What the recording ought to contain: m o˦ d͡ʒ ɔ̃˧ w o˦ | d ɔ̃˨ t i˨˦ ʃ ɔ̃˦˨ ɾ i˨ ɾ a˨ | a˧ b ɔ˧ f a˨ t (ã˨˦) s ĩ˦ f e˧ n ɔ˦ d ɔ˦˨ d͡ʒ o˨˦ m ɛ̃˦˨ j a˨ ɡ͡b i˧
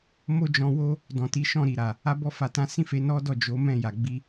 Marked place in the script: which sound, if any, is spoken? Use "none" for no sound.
ã˨˦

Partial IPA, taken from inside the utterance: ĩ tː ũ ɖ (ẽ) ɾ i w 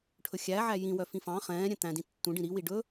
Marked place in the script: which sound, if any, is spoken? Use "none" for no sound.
ĩ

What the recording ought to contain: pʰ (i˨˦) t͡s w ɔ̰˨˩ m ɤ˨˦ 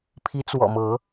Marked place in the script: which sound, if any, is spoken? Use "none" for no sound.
i˨˦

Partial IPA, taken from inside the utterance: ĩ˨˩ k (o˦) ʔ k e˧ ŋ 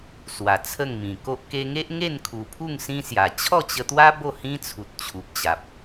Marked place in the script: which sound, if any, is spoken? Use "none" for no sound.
o˦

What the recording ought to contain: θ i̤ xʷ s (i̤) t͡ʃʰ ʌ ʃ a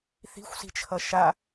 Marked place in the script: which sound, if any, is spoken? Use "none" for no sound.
i̤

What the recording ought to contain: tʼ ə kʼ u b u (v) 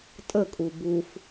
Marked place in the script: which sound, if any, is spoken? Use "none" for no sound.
f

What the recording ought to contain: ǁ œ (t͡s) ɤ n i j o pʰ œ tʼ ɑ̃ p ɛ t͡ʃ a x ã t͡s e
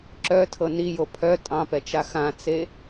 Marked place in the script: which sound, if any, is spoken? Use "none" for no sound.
tʰ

